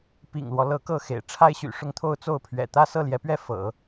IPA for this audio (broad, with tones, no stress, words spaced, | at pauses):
pḭ˨˩ŋlwɔ˦ lɤ˧˥kɤ˥˩ xḛ˨˩ɪ̯ʈ͡ʂʰa˥ɪ̯ɕy̰˨˩ ʂʊ˥˧ŋt̪ʰo˥˧ʊ̯ t͡so˥˩ʊ̯pʰɥɛ̰˨˩ t̪ä˥sɤ˥˩ljɛ˧˥pɥɛ˥˩ fɤ̰˨˩˦